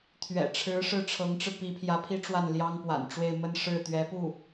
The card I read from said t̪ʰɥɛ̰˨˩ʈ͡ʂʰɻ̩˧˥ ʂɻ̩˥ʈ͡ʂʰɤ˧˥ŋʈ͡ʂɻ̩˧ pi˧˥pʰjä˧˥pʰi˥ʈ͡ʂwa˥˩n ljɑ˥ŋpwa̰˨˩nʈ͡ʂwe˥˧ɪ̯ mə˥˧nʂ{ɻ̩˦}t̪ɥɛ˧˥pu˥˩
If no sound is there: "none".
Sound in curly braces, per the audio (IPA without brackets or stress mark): ɻ̩˥˩